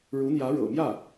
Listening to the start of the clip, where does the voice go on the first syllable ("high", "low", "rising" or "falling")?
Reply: rising